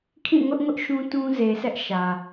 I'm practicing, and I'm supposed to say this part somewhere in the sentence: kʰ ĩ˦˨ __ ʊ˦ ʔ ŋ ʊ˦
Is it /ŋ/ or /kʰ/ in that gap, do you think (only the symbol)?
ŋ